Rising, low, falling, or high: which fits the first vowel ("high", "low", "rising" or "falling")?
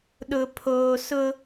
low